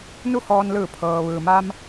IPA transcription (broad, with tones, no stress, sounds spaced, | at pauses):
n u˥˨ h ɔː˧ n l ɯː˧˩ pʰ ɤː˩ ʋ ɯː˩ m a˧ m